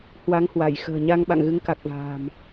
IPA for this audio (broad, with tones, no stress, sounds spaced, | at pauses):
h w a˨˦ ŋ h w a˧˩ j x ə̤ː˨˩ ɲ a˧ ŋ ɓ a̰˧˨ ŋ ɣ ɨ˨˦ ŋ k a˨˩ k̚ v a̤ː˨˩ m